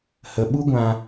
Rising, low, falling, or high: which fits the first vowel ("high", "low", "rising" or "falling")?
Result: low